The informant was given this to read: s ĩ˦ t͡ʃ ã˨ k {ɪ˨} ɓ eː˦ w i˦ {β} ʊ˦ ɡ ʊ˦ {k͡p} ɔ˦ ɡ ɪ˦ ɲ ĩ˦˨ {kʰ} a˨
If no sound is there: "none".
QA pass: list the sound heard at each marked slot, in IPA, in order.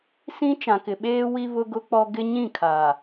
ɪ˨, β, k͡p, kʰ

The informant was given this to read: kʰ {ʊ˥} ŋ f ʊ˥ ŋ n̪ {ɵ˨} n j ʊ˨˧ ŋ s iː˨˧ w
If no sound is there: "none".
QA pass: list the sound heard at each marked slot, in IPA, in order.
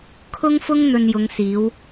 ʊ˥, ɵ˧

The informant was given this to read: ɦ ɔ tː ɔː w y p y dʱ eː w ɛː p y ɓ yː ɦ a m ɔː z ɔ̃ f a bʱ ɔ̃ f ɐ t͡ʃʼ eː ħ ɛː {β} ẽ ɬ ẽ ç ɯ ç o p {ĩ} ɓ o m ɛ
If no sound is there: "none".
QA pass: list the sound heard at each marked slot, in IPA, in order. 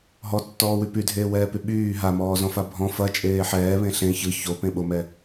β, ẽ

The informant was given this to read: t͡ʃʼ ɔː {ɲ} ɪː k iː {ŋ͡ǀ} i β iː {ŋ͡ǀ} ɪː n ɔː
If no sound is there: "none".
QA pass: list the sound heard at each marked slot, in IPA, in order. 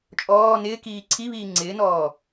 n, ǀʰ, ŋ͡ǀ

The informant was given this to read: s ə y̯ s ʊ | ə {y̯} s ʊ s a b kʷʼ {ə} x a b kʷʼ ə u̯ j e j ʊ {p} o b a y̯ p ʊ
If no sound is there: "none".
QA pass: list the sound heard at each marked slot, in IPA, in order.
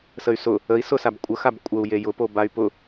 i̯, ə, p

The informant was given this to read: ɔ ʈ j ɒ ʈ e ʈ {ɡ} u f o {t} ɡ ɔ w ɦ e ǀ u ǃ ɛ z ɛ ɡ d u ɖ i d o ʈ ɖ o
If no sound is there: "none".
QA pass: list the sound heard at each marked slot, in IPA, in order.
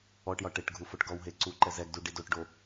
ɡʱ, ʈ

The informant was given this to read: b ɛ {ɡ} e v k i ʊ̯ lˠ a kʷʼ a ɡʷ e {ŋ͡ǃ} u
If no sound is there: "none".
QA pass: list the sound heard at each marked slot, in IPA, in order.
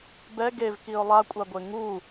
ɡ, ŋ

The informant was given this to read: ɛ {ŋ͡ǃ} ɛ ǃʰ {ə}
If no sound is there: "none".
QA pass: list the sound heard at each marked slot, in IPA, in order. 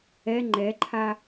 ŋ͡ǃ, a

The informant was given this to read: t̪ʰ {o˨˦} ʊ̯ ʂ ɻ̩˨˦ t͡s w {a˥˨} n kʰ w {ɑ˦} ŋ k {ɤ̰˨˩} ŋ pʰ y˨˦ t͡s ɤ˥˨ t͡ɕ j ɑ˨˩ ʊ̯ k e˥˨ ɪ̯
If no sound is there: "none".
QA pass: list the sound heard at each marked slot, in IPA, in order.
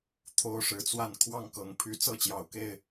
o˦, a˥˨, ɑ˥˨, ɤ˨˦

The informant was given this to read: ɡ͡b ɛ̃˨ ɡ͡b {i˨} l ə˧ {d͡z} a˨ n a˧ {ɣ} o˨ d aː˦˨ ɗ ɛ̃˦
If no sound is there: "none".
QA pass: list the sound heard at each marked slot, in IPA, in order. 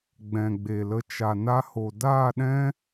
e˨, t͡ʃ, h

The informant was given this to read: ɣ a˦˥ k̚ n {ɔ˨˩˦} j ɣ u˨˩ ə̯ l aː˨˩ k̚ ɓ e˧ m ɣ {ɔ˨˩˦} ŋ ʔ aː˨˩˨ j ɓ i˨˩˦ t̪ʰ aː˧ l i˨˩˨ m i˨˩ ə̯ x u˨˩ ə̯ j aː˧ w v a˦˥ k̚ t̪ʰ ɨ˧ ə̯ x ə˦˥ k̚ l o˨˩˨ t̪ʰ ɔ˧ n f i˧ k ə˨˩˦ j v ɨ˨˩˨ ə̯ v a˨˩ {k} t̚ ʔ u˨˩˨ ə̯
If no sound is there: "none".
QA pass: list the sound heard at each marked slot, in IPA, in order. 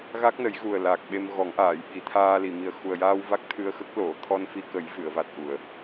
ə˨˩˦, ɔ˨˩˦, none

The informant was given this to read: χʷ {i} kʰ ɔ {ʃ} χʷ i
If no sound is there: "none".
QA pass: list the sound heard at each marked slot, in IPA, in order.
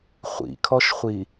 ḭ, ʃ

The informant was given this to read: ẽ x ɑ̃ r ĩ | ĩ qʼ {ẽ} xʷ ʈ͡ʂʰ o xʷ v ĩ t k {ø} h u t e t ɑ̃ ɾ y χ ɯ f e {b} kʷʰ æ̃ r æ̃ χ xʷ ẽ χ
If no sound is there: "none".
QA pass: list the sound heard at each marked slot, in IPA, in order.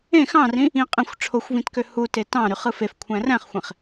ĩ, ø, f

